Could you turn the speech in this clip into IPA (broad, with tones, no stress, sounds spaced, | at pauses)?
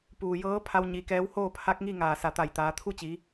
p uː˩ j ɤː˧˥ pʰ a˧ w ɲ i˩˧ k ɛː˧˥ w h oː˥˨ pʰ a˧˥ k̚ ŋ i˥˨ ŋ aː˧˩ s a˧˩ t̪ a˧˩ j t̪ aː˩˧ t̪ʰ u˥˨ t͡ɕ i˩˧